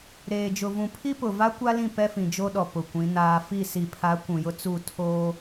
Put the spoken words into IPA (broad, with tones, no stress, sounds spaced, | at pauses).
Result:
ɾ eː˨ d͡ʒ ʊ˨ v ũ˨ pʰ i˦ p ʊ˨ v a˦ kʷ a˦ l ĩ˦˨ p ɛ˦ f ĩ˨ d͡ʒ o˦ ɗ ɔ˨ p ʊ˨ kʷ ĩ˨˦ n aː˦ f i˦˨ s i˨ pʰ a˨˦ kʷ ũ˨ j ʊ˦ t͡s u˦˨ tʰ oː˦